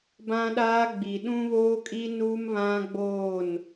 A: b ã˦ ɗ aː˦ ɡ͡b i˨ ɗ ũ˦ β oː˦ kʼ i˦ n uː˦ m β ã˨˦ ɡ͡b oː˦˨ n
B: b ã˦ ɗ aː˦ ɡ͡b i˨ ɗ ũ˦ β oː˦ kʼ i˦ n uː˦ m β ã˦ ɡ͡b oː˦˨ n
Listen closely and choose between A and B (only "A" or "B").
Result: B